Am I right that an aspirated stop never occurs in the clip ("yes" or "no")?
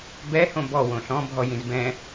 yes